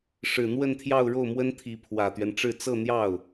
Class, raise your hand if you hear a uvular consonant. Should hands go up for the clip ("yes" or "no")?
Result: no